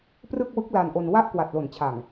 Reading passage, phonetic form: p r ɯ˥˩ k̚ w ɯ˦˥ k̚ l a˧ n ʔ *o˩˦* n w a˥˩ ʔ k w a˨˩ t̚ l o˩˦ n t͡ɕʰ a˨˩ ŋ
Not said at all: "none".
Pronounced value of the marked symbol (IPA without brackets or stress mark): o˧